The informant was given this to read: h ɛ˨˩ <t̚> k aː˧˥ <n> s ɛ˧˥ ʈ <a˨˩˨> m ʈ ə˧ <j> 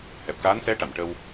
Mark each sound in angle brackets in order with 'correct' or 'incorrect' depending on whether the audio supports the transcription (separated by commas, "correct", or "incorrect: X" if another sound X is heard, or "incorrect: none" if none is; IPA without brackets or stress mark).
incorrect: p̚, correct, correct, incorrect: w